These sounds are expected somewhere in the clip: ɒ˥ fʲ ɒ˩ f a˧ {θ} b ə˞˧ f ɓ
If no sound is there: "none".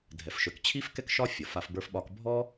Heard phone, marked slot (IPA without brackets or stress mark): f